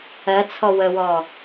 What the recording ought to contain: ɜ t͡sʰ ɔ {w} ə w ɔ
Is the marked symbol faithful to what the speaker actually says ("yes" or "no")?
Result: yes